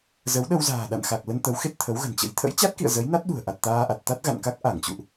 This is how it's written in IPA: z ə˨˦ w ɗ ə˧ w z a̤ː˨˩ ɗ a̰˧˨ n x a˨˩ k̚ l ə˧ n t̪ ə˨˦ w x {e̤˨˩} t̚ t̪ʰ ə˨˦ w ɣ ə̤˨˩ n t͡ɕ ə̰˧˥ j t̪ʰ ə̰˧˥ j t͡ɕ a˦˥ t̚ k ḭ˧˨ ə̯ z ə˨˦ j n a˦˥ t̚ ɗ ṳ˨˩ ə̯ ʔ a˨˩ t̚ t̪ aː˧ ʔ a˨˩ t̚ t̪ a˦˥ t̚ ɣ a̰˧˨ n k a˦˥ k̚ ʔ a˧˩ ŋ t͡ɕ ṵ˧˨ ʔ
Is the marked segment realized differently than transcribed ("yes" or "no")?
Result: yes